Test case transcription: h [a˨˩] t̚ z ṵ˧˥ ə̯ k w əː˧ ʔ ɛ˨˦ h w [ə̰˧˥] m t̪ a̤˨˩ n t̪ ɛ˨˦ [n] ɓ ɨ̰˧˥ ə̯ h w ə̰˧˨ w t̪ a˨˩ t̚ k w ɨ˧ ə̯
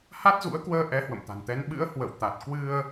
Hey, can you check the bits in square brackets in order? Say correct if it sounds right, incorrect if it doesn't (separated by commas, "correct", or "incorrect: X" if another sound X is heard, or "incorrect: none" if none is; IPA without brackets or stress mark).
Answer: incorrect: a˦˥, incorrect: ə̰˧˨, correct